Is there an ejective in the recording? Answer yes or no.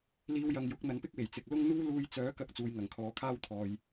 no